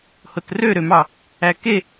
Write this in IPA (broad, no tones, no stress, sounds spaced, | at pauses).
h o t r ø ɾ ø m ɑ | æ k e